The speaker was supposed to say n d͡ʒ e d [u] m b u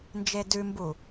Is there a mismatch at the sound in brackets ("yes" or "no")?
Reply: yes